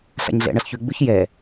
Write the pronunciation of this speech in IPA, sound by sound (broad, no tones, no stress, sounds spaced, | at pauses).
ɬ a̰ ɲ ɮ ɛ̰ ɳ ʌ ɬ ç ʉ ɡ͡b ʉ ç j ɛ